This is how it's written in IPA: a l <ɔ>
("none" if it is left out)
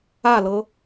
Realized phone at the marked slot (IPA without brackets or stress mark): ɤ